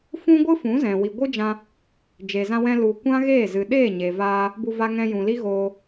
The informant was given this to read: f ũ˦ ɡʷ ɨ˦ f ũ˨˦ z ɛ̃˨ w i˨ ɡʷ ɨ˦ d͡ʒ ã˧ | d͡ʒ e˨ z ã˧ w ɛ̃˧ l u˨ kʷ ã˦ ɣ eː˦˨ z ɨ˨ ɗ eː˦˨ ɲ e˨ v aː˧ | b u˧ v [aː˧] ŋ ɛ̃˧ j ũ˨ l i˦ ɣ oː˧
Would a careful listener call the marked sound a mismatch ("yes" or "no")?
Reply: yes